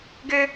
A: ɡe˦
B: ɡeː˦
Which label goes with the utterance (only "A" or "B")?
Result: A